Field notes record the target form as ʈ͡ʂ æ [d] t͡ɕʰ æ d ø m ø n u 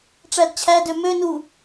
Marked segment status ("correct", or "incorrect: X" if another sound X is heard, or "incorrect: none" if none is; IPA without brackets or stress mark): correct